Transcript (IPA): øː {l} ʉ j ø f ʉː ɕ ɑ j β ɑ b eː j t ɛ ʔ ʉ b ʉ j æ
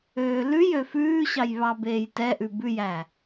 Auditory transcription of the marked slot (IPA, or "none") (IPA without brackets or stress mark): l